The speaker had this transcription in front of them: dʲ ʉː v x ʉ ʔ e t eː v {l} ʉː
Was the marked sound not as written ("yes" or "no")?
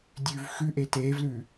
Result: no